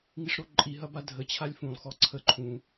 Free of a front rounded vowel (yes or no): yes